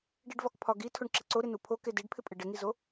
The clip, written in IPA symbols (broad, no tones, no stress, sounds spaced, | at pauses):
ɖ i ɖ v ɒ k pʰ ɒ ɡ i tʰ o ɳ ǁ e ǀ o ɾ ɪ n u pʰ o k e d i ɖ pʰ ɪ pʼ e ɖ ɪ ŋ i z o